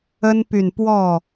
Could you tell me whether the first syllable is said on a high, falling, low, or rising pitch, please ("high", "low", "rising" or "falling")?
high